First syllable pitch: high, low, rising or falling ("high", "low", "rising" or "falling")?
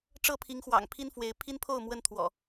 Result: falling